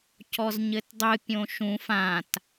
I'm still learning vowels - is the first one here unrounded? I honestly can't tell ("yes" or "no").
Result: no